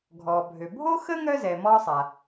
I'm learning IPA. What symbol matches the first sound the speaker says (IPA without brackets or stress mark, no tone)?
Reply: ɡʱ